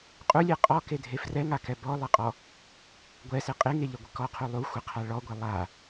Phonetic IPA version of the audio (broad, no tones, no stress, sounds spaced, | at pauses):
qʼ u lʲ e qʼ ɔ k e dʱ e f r ɛ ŋ a k ɛ b ɔ lˠ ɪ qʼ ɔ | ɡʷ ɛ s e qʼ e ŋ e ʎ ə ɡʷ ɪ k ɔ qʰ u lˠ u xʷ ɪ qʰ a ɭ ɔ ɡʷ e lˠ a